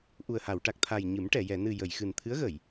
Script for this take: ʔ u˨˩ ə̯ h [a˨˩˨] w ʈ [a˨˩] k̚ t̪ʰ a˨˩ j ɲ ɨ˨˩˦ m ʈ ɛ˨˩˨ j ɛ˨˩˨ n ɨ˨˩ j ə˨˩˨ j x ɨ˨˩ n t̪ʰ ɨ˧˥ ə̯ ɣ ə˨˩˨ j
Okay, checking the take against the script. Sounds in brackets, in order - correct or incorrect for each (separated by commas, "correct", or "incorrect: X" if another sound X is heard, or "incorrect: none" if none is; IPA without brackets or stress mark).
correct, correct